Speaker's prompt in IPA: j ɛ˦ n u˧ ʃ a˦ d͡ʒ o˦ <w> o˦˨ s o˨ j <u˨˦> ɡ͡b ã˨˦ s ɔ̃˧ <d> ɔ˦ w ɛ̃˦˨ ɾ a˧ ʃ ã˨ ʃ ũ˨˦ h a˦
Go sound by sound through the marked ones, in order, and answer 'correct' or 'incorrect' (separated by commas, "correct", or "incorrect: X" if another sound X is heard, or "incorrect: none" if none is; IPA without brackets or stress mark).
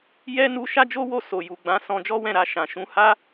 correct, incorrect: u˨, incorrect: d͡ʒ